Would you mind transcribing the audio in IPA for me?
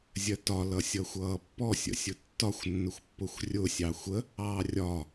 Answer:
zʲ ɜ t ɒ l ʌ sʲ ʌ xʷ ʌː pː ɔ sʲ ə̰ sʲ ʊ tː ɒ xʷ nː ʊ xʷ pː ʊ xʷ rʲ ʊ sʲ ɑ xʷ ə | ɑː rʲ ɒ

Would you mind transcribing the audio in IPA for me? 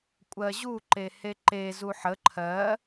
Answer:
kʷʼ ɜ ʑ u ǃ e h e ǃ e z u ħ ə ǃʰ ɜ

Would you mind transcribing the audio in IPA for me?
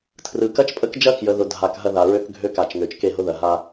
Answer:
tʰ r ɯ˨ k ɐ˦ t͡ʃ pʼ ə˦ k d͡ʒ ɐ˦ k j ə˨ ð ʊ˨ dʱ a˨ k ɦ ɐ˦ ð a˨ ɹ ø˦ k ɡʱ ø˦ k a˨ t͡ʃ ŋ ø˨ t͡ʃ k e˦˨ ɦ ʊ˦ ð ɐ˨ ɦ a˦

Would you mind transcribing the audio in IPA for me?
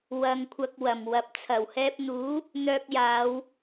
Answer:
w ɐ˧ ŋ kʷʰ ɐ˧ k̚ w ɐ˨˩ m w ɐ˨˥ p̚ t͡sʰ ɐ˨˩ w h ɛː˧ p̚ n̪ uː˨˥ | n̪ œː˧ k̚ j aː˨˧ w

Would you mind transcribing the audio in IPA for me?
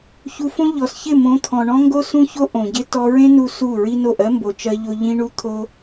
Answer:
ç u˧ f õ˦ ʎ ɔ˨ s ç ɪ˦˨ m õ˨˦ t̪ʰ ɔ̃˨ ɳ ɔ̃˦ ŋ ɡ o˦ s ũ˦ ç o˦ ʔ õ˨ ɟ ɪ˦ t ɔ˧ ɹ ẽ˦ n u˧ s u˦˨ ɹ i˦ n o˦˨ ʔ ɜ˦ m b o˨ t͡ʃ ɜ˧ ʎ o˧ ʎ ĩ˦ ɳ u˦ t̪ʰ o˦

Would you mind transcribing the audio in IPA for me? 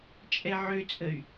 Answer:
t͡ʃʼ ɛ ʕ ø t͡sʼ ə y̯

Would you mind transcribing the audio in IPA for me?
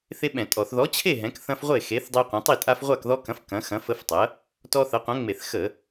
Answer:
θ e˦ ɓ ɛ̃˧˩˧ tʼ ɔ˧˩˧ θ ð ɔ˨˥ t͡ɕʰ e˥˨ ɦ ɛ̃˨˥ k θ ɐ̃˦ f ʁʷ e˥˨ x e˨˥ θ dˤ e˦ qʷ ɐ̃˨˥ tˤ i˥˨ tʼ a˦ f ʁʷ a˥˨ k ð ɔ˦ k ɐ̃˨˥ f k ɐ̃˨˥ x ɐ̃˨˥ f ə˦ f tˤ ɐ˨˥ | t ɔ˦ θ ɐ˨˥ qʷ ɐ̃˨˥ ŋ͡m e˧˩˧ θ x ə˧˩˧

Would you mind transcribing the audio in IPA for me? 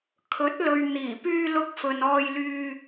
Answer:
kʰ ɵ˨˥ t̚ l ɵ˨ ɥ n̪ iː˨˩ p yː˧ l ʊ˧ k̚ f ɵ˨ n ɔː˧ j l yː˧

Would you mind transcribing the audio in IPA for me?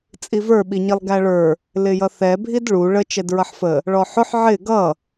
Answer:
t͡sʼ i v ə˞ ɓ i ɲ i lˠ ɡ æ ɭ ə˞ | l ɪ j ʌ θ ɛ bʱ i d ɭ u ɭ ə t͡ʃ ɛ d ɹ ʌ ħ f ə | ɭ ɔ ħ ʊ ħ ʕ ɪ ɡ ʌ

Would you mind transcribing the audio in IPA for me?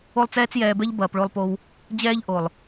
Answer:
o˦ lˠ t͡s ɛː˦ t͡s j ɛː˧ b ɛ˦ ʎ b ɐː˨ p ɭ o˧ lˠ p o˧ w | d͡ʑ ɛː˦ ʎ ʔ o˨ lˠ

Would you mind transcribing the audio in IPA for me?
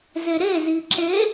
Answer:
z e ɾ e z i ǁ e

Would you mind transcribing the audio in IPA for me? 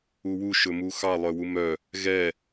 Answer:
u w u ʃ ɵ m u x ɑ lˠ œ w u m œ | ɣ ɛ

